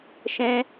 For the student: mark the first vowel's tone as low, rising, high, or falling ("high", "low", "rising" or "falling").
high